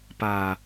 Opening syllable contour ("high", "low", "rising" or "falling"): low